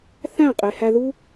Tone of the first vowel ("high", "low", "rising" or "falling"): falling